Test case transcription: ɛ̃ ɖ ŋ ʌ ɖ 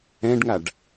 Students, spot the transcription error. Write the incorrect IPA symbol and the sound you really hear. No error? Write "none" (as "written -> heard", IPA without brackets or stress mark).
ʌ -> a